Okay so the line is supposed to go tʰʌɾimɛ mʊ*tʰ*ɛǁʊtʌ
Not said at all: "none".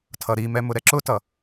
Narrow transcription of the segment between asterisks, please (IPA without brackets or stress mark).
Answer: ɾ